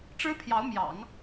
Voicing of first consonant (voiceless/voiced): voiceless